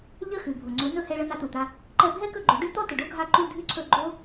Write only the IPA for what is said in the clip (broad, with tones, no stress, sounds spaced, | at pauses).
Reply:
ʎ ə˥˩ x ʉ˩ bʱ o˩ ŋ͡ǀ ɵ˩˥ n ɵ˥˩ h ɛ˧ ɭ ə˧ n a˧ t u˩ t̪ a˧ | ǃ ɛ˧ bʱ ɛ˥ k ɵ˥˩ ɡ͡ǃ ɵ˩˥ ɖ ʉ˥ t̪ ɔ˥ t ə˩ ɖ o˥ ɡʱ a˥˩ ǃ u˥˩ dʱ ʉ˥ ǀʰ ɵ˥˩ ɡ͡ǃ o˥